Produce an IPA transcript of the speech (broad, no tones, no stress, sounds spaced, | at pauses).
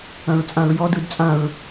ɐ̃ ɹ t͡sʼ ã ɹ j ɔ d ɯ d t͡sʼ ã ɹ